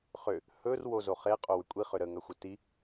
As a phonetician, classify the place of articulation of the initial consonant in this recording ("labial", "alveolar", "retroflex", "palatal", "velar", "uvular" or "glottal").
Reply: uvular